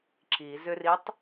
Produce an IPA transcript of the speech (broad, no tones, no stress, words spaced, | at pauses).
ǁizʏritˤ